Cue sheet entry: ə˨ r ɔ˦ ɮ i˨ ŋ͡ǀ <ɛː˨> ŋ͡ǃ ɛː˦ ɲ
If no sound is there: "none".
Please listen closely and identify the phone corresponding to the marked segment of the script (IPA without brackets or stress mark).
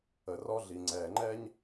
ɛː˨